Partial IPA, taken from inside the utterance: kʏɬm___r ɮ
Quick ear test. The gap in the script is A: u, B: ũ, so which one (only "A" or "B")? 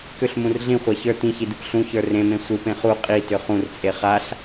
B